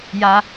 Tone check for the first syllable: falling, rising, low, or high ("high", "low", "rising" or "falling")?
high